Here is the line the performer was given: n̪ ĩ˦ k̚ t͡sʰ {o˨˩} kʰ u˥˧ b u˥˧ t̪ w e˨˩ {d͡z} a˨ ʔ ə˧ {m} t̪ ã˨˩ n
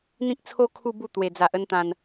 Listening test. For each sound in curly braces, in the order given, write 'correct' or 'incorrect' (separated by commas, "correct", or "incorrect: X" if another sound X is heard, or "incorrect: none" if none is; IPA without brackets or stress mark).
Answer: incorrect: o˦, correct, incorrect: n